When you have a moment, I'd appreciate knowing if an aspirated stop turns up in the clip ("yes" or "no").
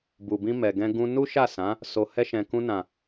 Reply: no